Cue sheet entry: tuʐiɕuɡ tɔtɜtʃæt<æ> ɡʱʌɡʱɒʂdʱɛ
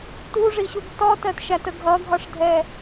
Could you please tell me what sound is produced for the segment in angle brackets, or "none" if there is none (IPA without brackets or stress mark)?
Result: ə